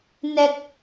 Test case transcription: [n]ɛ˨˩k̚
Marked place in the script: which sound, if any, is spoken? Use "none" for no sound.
n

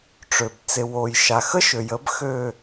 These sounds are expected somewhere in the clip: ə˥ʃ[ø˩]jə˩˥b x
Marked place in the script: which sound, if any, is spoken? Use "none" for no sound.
ø˩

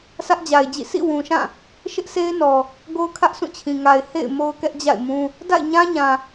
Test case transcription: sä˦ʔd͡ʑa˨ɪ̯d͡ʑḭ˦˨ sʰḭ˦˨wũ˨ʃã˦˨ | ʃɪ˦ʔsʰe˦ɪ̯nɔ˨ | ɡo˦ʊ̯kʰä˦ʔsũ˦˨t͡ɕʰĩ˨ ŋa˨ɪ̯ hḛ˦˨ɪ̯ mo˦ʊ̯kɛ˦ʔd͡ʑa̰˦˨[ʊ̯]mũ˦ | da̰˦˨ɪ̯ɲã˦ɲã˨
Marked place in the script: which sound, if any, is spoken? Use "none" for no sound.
ɪ̯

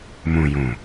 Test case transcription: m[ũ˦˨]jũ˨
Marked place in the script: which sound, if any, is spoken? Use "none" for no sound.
ũ˨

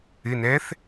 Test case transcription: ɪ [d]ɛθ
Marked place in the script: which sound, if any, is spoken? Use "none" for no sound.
n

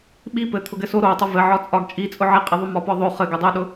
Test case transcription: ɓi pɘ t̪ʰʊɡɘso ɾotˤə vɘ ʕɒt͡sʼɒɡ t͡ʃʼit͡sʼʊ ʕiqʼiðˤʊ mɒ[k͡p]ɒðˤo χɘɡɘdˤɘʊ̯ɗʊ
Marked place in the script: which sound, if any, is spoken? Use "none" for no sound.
p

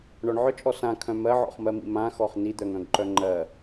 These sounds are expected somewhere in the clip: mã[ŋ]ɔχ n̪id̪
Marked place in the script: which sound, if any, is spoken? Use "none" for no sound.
x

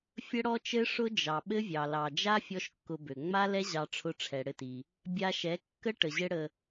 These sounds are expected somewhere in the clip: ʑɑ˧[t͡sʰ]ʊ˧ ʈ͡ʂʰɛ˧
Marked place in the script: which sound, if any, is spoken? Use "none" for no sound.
ʈ͡ʂʰ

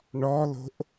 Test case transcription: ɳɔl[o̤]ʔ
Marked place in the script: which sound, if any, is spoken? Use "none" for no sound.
o̤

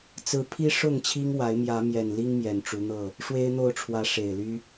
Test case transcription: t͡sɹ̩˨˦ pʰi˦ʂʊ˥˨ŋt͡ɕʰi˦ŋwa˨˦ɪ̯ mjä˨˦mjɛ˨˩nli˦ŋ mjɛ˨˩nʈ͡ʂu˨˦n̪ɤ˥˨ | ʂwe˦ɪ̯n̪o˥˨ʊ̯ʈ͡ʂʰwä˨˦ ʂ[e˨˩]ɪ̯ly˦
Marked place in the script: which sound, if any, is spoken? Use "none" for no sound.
e˨˩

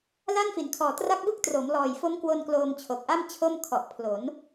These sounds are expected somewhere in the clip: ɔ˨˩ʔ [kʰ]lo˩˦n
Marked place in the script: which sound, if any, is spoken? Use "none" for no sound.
pʰ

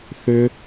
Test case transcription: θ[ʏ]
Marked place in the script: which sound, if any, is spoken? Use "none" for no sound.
ʏ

